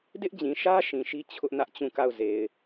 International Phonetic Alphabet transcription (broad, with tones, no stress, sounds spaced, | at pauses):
d ɪ˦ ʔ d͡ʑ ĩ˨ ʃ ä˦ ʃ ĩ˨ ʃ i˦ t͡ɕʰ ʊ˦ ʔ n ä˦ ʔ t͡ɕ ũ˦˨ k a˦˨ ʊ̯ z e˨ ɪ̯